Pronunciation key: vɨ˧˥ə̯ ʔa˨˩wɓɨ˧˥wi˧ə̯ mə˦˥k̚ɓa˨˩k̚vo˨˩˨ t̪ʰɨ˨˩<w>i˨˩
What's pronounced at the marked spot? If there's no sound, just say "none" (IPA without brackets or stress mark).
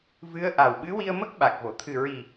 ɹ